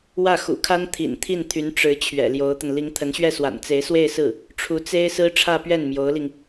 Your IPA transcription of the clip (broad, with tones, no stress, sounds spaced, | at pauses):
w ä˥˩ x ṵ˨˩ kʰ a˥ n t̪ʰ ḭ˨˩ n t̪ʰ i˥˩ n t̪ʰ y˧˥ n ʈ͡ʂ ɻ̩˧˥ t͡ɕʰ ɥ ɛ̰˨˩ l j o˧˥ ʊ̯ t̪ ə˧ n l i˧˥ ŋ t̪ʰ ə˧˥ n ɕ ɥ ɛ˥˩ s w a̰˨˩ n t͡s e˧˥ ɪ̯ s w e˥˧ ɪ̯ s ɹ̩˥˩ | ʈ͡ʂʰ u˧˥ t͡s e˥ ɪ̯ s ɹ̩˥ ʈ͡ʂʰ ä˥˧ p ɥ ɛ˥˩ n m j o˧˥ ʊ̯ l i˧ ŋ